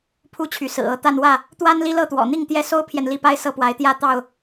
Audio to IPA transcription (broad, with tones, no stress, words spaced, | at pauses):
pʰu˥˨t͡ɕʰy˨˦sɹ̩˨˩ɤ˥˨ t̪a˥˨nwä˥˨ | t̪wa˦n li˦lɤ˥˨t̪wɔ̰˨˩n̪i˥˨ŋ t̪jɛ˥˨ so˦ʊ̯pʰjɛ˨n li˥˨pa˦ɪ̯ sɤ˥˨pwa˨˦ɪ̯ t̪jä˥˨t̪ɑ˥˨ʊ̯